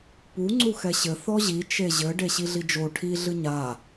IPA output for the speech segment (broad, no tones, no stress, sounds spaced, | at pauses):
p u ŋ͡ǀ u x ɛ ɕ ɘ θ ɔ ʑ i t͡ʃ e ʑ ɘ ɖ e ɕ i ɮ i d͡ʒ o ʈʰ i ɮ ɨ ɲ a